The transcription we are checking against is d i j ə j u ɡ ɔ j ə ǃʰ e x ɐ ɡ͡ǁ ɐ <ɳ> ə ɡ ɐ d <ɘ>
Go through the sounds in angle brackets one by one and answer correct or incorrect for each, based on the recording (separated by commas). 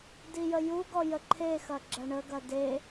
correct, incorrect